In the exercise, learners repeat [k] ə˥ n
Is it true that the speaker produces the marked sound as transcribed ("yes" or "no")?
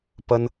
no